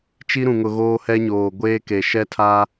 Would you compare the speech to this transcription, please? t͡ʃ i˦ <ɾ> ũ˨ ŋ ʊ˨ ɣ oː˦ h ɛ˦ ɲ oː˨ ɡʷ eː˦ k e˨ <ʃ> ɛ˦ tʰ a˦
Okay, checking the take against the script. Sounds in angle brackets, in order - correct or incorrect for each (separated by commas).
correct, correct